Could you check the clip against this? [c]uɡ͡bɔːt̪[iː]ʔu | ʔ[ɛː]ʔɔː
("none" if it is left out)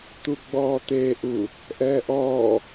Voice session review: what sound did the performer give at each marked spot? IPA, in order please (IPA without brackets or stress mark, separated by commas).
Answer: t̪, eː, ɛː